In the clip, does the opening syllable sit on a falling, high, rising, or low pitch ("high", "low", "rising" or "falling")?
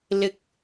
rising